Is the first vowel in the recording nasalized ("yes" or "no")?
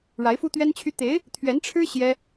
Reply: no